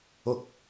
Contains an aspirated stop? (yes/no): no